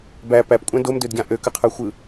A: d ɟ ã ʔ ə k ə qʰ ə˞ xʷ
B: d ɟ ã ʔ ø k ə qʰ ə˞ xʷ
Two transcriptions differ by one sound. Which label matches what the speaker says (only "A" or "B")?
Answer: B